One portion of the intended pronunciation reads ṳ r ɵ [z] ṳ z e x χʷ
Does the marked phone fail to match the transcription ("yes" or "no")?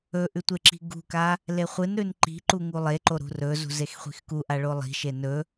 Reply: no